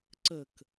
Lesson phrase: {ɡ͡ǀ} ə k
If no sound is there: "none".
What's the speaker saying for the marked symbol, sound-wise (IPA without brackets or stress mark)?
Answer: ǀ